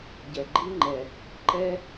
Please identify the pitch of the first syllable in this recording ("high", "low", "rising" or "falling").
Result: low